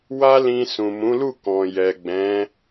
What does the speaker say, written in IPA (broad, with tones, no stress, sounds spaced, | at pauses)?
w a˦ l ĩ˧ s ũ˨ m ũ˨˦ l u˦˨ k ɔ̃˨ j ɛ˨ ɡ͡b ɛ̃˨˦